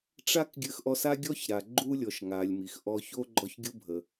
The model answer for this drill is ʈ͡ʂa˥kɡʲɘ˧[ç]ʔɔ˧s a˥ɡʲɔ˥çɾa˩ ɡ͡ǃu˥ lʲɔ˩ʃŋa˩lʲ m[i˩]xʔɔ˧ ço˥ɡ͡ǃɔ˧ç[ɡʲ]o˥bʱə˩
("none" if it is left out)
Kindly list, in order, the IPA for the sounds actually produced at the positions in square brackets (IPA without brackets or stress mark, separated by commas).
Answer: x, i˩, ɡʲ